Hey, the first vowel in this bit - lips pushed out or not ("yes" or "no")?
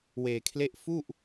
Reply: no